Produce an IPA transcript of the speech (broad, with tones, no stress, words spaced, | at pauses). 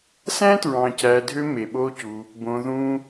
sæ̃˦tɹɑ̃˨ cæ˧dʱø˦ me˨ɓo˦cu˧ | bõ˧ðũ˦